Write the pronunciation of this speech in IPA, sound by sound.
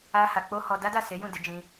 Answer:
a˦ha˧k͡po˦ hɔ˧ da˦ da˦˨se˨˦ jũ˦˨de˨˦ d͡ʒĩ˦

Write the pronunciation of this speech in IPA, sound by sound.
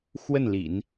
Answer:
xwə˥˩nlḭ˨˩˦n

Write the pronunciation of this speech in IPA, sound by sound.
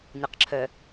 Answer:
nʲʌq ǁʰœ

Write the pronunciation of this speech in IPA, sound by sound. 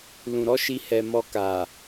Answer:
lũ˨ɾɔ˨˦ʃi˧ hɛ˨ mɔ˧ka˨

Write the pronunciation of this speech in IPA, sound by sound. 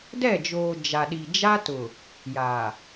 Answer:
dɛ˦˨d͡ʒoː˨ d͡ʒa˨ɗi˨d͡ʒa˦tʊ˨ | jaː˨

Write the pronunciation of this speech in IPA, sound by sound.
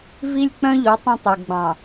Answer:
vi˦lʲk͡pœ̃˦ʎo˨˦ tˤĩ˦tˤʉ˨ɡ͡bɑ̃˨

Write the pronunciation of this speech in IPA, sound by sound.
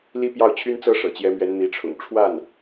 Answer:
li˥pjɑ˥˩ʊ̯t͡ɕʰy˥nt͡sɤ˥ ʂɤ̰˨˩t͡ɕjɛ˧˥mɥɛ˧˥n n̪i˧˥ʈ͡ʂʰʊ̰˨˩ŋ ʈ͡ʂʰwa˥˩n

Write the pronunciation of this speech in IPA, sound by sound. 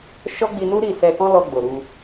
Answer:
ʃɔ˦ɡ͡bi˧nu˦ ɾi˦˨sɛ˧kɔ̃˦lɔ˧ ɡ͡bo˨ɾu˧

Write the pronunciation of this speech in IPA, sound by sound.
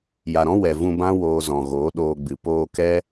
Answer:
ja˨ɾɔ̃˦ wɛ˨ vũ˧bã˦ woː˧zɔ̃˨ ɣoː˨˦ɗoː˧ɡ͡bɨ˨ poː˧kɛ˦

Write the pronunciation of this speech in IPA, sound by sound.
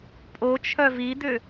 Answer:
pʼot͡ʃʰœ vid̪ʏ

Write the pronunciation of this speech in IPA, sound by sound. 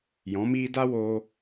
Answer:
jɔ̃˨˦miː˦ da˦woː˧

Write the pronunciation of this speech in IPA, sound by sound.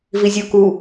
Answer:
vizʲu ku

